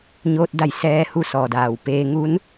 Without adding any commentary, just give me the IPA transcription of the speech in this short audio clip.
ɲ oː˧ t̚ d a˧˩ j s ɛː˧ h u˧˩ s ɔː˩ d aː˩ w p eː˧ ŋ u˧˥ n

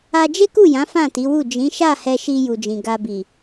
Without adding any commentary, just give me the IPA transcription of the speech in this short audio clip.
a˧ d͡ʒ e˦ k u˦˨ j ã˨˦ f ã˦˨ t i˨˦ w u˦˨ d͡ʒ ĩ˨˦ ʃ a˦˨ h ɛ˧ ʃ i˧ j u˨ d͡ʒ ĩ˨ ɡ a˨ b i˨

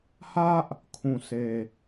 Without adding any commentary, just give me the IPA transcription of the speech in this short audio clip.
h ä˦ ʔ | kʰ ũ˨ s e˨

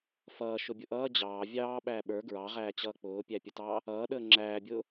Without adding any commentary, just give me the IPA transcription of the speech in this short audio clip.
f ʌː ʃ ʊ bʲ ʊ ʔ ʌː d͡ʑ ɑː vʲ ɑː ɓ æː ɓ ə˞ ɡ ɹ ɑ ʁ æː t͡ɕ ʌː k͡p ʊː pʲ æ pʲ ə t ɑː | ʌː ɗ əː ŋ͡ǁ æː bʲ ʊː

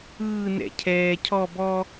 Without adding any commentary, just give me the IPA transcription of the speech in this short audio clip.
ɯː n ɛ̰ cʰ ɛː cʰ ɔ b ɔ

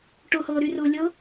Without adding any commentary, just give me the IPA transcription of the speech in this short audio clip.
ʈ ʊ h ɤː ɾ y r ʊː lʲ ɤ

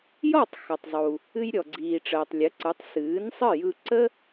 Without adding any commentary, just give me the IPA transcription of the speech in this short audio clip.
j ɔ˥˩ tˤ x ɔ˩ tˤ zˤ u˩ | ɨ˧ j ɾʲ ɔ˩ ɡ͡ǀ iː˩ ʈ͡ʂ əː˩ tˤ lʲ ə˩˥ ǀ ɯ˩˥ tˤ s ɨː˩˥ n sˤ ɨ˥˩ j ɯ˧ ǀ ə˥

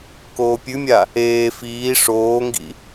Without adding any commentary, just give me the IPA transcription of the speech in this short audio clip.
k oː pʲ ʉ mʲ a | eː f iː ʂ oː ŋ ɡ ḭ

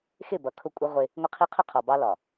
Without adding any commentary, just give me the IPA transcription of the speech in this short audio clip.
x ɪ˦˨ b ʌ˨ kʰ ʊ˦˨ kʷʼ ʌ˦ ʁʷ ɪ˦ | ŋʷ ɪ˦ qʰ i˦ qʰ ʊ˦ qʰ ɒ˨ b ɑ˦ l ɒ˨

